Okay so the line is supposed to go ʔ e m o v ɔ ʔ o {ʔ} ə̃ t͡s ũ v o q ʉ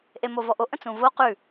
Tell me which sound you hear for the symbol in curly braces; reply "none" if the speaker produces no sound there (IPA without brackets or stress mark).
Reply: ʔ